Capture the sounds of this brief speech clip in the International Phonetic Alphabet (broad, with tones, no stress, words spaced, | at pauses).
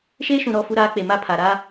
ʃeː˦ʃũ˨ ɾɔ˦˨ fu˦ɾaː˦k͡pe˨ ma˦pʰa˨ ɾa˦